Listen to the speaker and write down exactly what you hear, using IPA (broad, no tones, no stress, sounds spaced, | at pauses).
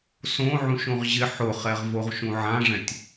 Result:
s õ ʕ ũ ʃ õ ʁ ʑ ɪ ħ ʊ χ ɛ ʁ v o ʁ ʃ ũ ʕ ã ʐ ɛ̃ tʲ